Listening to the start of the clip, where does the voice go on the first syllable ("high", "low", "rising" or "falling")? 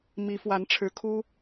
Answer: rising